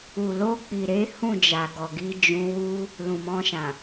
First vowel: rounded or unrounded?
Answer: rounded